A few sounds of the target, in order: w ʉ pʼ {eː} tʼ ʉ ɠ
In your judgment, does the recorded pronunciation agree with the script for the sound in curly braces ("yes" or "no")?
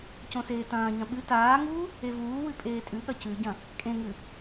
yes